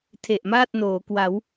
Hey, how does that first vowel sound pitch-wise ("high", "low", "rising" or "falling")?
low